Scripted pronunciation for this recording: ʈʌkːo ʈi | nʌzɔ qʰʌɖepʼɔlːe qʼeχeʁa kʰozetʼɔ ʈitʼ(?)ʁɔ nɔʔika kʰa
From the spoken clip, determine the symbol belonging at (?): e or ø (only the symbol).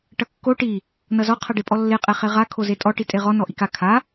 e